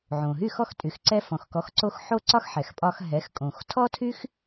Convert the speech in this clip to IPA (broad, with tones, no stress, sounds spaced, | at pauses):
ʕ õ˩ ɦ y˥˩ x ɔ˥˩ x tʼ y˩ x ǀ ɛ˧ f ɔ̃˩ x k ɔ˩˥ x ǀ o˧ x ħ o˥ ǀ ɒ˥ x ħ ɛ˩ x pʼ ɒ˧ x ɦ ɛ˩˥ x kʼ õ˩ x tʰ ɔ˥ tʰ y˥ x